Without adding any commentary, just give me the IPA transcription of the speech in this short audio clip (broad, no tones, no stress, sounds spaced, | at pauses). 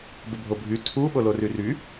b ə bʱ o bʱ y tʰ u ɓ o l o r y r y